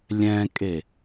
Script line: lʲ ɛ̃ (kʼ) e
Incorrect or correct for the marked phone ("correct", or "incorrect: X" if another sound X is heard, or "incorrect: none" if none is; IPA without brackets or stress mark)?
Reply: correct